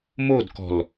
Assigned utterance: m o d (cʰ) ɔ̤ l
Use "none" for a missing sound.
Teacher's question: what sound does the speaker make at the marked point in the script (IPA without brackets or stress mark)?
k